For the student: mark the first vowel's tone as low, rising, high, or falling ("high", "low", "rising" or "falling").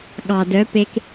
low